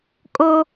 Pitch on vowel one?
high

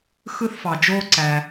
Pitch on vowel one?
high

